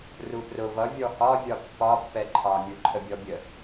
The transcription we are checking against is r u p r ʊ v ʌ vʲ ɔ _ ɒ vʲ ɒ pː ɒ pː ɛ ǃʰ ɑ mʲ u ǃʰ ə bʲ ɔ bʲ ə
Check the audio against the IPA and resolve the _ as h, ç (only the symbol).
h